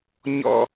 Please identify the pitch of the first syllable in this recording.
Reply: high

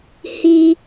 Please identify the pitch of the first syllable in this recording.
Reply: high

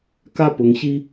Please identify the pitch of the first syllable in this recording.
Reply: falling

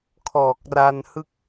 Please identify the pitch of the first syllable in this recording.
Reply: low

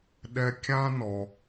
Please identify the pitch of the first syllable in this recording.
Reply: low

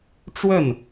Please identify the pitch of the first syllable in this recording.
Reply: falling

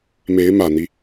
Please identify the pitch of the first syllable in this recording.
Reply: rising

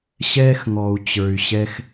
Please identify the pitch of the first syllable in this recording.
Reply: high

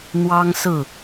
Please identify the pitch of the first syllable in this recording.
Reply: high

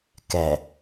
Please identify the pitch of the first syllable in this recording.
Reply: low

